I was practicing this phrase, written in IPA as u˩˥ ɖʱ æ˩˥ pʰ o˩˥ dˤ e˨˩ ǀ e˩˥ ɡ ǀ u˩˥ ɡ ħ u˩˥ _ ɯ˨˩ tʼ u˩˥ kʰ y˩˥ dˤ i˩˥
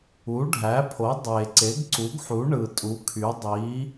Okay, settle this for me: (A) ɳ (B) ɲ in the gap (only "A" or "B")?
A